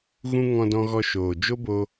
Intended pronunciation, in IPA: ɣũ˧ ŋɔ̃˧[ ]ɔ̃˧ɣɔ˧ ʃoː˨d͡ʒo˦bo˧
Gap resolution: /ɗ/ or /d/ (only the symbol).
d